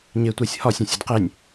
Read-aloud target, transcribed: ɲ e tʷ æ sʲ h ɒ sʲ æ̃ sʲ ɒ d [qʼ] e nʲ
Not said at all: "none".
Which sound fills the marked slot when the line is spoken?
q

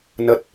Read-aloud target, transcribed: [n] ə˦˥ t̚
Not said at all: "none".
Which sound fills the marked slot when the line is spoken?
n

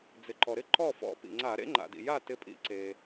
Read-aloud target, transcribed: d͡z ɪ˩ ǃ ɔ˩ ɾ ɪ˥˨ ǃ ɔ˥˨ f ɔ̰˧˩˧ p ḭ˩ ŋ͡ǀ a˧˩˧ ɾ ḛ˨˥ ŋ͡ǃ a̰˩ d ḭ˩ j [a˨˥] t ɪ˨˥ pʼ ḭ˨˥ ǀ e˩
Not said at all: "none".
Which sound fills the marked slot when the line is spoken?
a˥˨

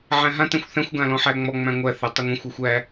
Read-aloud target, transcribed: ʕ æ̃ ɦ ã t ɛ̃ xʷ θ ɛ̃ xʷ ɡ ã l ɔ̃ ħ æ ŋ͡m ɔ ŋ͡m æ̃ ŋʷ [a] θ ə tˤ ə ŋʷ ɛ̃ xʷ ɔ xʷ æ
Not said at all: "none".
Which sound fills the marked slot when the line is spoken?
æ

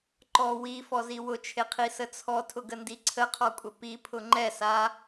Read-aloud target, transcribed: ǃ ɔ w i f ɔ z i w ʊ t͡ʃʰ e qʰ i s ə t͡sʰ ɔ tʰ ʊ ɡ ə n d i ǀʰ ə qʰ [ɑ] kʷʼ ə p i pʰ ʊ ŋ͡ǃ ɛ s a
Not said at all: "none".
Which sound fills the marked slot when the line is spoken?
ɔ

